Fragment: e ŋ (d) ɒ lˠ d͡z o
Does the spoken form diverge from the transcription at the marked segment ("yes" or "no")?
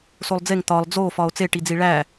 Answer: yes